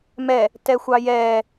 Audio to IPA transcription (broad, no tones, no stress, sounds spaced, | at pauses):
m ɛ | t ɛ xʷ ɑ j ɛː